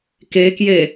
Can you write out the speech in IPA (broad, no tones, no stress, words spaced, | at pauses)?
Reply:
kekje